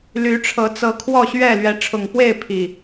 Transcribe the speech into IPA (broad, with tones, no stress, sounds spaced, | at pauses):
l y˨˦ ʈ͡ʂʰ ɤ˨˦ t͡s ɤ˨˦ kʰ w ɔ˥˨ ɕ ɥ ɛ˥˨ l ɥ ɛ˨˦ ʈ͡ʂʰ ʊ˨˩ ŋ p w e˥˨ ɪ̯ pʰ i˨˩